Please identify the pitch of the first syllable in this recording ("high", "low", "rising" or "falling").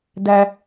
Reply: high